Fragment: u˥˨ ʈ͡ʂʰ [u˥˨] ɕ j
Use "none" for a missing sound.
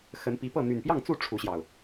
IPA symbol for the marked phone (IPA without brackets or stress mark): u˨˦